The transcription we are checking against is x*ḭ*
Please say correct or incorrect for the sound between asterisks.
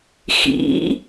correct